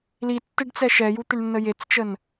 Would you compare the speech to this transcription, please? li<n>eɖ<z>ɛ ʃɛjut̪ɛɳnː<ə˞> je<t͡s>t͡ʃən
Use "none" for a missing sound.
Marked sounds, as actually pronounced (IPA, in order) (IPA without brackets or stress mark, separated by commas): tː, t͡s, ə, t͡s